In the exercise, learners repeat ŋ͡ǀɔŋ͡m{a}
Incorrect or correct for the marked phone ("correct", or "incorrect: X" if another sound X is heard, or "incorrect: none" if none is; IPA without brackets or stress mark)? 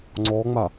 correct